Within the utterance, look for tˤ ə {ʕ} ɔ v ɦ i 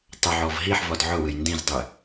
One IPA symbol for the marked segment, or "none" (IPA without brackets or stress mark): ʕ